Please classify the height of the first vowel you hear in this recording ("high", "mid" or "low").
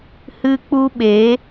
high